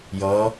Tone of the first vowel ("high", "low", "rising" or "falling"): rising